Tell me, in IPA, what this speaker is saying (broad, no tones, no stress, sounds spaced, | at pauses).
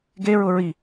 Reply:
ɡ e ɹ ʊ ɹ i